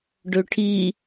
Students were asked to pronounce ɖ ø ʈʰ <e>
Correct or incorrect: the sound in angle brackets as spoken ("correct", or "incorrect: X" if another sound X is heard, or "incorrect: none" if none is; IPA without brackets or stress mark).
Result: incorrect: i